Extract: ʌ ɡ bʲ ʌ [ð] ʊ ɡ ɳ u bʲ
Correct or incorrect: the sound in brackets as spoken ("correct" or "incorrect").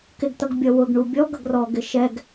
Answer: incorrect